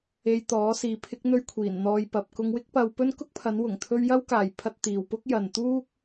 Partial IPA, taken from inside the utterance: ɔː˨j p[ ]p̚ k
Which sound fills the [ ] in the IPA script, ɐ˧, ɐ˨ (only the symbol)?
ɐ˨